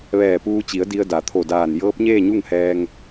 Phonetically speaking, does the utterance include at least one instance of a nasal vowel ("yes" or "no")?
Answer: no